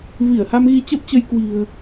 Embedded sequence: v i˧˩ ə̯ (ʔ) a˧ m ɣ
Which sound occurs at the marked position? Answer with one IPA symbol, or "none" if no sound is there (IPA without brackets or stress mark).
h